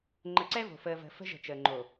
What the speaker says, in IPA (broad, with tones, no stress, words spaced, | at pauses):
ŋ͡ǃə˨ǀɛ˦vo̤˨fəː˨ və̤˨ fə̤˦ʒə̤˨t͡ʃəː˨ŋ͡ǃo˨